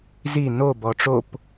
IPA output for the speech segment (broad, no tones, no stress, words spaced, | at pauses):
zi no bɔʈ͡ʂop